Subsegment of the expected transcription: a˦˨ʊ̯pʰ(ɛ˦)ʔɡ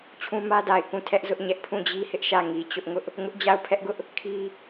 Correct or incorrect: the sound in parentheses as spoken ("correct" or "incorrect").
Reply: correct